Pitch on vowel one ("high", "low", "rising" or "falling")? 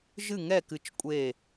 falling